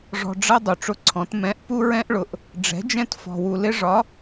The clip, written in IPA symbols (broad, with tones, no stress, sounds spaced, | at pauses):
ʐ ɔ̤˨ ɖ͡ʐ ʌ˦ dˤ u˨ ʈ͡ʂ ʊ˦ ǀʰ ɔ̃˨˦ t m ɛ̃˨˦ ʔ p u˦ ɹ ɛ̃˦ ʔ ɭ ʊ˨ ʔ | ɖ͡ʐ ɛ̤˨˦ d͡ʒ ɛ̃˦ t f ɔ̤˨ w u˨ l ɪ˦ ʐ ɒ˨˦